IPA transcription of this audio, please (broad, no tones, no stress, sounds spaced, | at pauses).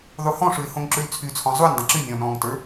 ðˤ u h ɔ̃ ʂ ʉ ɪ̯ h õ ŋ ǁ ʉ l t͡sʰ y t͡sʰ ɔ̃ zˤ u nʲ dˤ ə̃ ǁ y nʲ ɔ̃ n ɔ̃ː ŋ t ə˞